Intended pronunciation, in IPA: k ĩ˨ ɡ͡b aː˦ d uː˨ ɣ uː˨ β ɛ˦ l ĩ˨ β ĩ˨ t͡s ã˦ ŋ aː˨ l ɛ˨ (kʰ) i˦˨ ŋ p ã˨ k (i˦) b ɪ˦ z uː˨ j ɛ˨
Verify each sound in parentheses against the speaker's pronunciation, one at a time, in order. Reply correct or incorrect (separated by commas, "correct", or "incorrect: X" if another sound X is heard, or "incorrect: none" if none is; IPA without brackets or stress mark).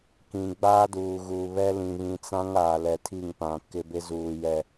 incorrect: tʰ, incorrect: ɪ˦